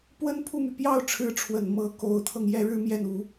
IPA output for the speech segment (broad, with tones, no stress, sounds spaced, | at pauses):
p w ə˥ n pʰ u˥˩ m y˩ p j ɑ˥˩ ʊ̯ ʈ͡ʂʰ ɻ̩˧˥ ʈ͡ʂʰ w ə˨˩ n m ɤ˧˥ k o˧˥ ʊ̯ t̪ʰ ɤ˧ ŋ j ɛ˥˩ ɻ ɻ̩˥ m j ɛ˥˩ n u˧˥